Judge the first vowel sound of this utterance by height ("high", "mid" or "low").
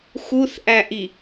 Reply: high